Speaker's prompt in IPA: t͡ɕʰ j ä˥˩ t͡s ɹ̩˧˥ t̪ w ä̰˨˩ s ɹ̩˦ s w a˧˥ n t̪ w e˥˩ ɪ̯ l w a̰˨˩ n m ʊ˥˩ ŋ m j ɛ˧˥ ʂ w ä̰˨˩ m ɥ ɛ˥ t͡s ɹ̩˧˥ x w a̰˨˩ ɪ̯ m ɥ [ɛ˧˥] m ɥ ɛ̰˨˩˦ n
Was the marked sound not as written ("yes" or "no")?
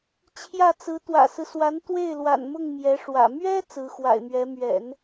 no